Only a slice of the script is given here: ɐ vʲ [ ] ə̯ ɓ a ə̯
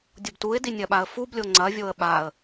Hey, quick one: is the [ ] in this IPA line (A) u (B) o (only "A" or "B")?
B